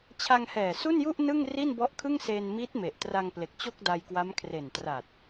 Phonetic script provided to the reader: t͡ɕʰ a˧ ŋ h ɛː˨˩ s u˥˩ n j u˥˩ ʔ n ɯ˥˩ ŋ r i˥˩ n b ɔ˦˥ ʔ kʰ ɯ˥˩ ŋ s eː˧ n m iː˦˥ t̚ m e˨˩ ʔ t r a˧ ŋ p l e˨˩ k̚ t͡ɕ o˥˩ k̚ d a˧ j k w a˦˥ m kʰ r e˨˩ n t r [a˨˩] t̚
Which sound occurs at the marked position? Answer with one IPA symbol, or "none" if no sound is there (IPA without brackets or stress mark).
a˨˩